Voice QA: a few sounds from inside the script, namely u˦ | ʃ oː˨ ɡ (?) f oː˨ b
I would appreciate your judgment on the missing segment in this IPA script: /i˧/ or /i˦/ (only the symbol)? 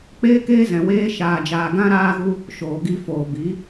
i˧